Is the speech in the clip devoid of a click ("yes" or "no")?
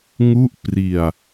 yes